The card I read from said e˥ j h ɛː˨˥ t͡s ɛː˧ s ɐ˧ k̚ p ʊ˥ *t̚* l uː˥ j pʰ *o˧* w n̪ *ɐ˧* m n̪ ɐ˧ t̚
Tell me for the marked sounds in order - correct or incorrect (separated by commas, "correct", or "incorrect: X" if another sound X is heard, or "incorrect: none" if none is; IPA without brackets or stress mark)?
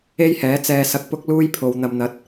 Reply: incorrect: k̚, correct, correct